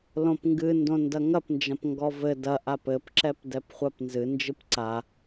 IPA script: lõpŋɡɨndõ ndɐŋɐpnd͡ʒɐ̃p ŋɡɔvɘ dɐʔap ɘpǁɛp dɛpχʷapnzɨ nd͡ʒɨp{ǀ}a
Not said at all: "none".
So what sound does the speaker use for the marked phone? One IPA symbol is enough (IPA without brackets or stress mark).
ǀ